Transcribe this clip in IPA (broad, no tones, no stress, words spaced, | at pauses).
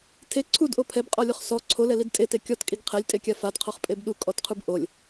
tʰe ǀʰudʔo pʰɛbqʼɔlʲoχ sɔ ǀʰolɛlid tʼete kʲɔtkʼiɡ qʰɛlʲtʼekʲa fadqʰɔχpʼeb ɗukʼɔtqʰub ʔolʲ